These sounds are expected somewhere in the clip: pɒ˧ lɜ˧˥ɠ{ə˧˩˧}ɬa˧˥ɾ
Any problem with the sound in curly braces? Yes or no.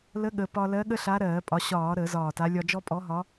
yes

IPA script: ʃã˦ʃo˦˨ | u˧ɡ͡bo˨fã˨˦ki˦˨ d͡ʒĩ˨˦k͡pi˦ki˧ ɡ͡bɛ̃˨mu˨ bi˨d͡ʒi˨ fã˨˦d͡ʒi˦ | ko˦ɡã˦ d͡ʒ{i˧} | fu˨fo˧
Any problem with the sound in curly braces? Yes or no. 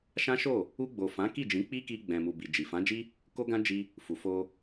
yes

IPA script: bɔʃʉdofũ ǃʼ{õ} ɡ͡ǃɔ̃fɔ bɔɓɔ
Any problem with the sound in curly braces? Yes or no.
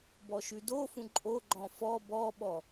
yes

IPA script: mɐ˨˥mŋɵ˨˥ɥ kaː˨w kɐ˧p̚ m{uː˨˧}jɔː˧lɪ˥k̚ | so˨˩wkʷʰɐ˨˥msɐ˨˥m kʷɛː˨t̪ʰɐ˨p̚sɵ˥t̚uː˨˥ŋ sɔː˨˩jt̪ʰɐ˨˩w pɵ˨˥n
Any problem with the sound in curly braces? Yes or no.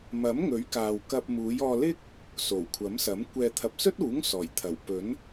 no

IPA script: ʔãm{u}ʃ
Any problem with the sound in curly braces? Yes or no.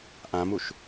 no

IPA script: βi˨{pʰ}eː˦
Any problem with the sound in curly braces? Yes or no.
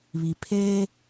no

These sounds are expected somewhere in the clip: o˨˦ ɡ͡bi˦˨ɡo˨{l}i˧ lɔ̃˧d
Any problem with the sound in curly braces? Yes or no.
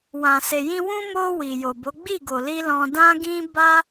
no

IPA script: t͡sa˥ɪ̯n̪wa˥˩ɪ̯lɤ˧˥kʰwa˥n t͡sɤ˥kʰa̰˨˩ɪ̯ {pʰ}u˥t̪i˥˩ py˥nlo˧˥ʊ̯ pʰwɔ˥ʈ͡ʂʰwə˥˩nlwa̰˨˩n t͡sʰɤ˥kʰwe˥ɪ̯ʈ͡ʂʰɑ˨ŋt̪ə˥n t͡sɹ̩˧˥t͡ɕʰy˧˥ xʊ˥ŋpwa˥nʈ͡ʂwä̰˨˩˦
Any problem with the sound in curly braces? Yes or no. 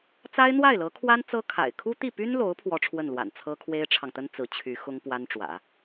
yes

